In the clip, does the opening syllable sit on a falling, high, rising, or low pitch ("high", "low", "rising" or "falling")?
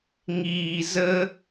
low